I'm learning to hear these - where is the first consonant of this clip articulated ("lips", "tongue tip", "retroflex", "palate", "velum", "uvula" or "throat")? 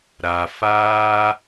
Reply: tongue tip